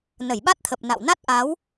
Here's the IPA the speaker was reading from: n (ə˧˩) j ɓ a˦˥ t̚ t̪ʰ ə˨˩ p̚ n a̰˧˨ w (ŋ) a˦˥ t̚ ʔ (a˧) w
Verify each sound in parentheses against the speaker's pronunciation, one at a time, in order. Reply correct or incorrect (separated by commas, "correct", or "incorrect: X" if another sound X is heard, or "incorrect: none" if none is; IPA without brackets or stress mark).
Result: correct, incorrect: n, incorrect: a˨˦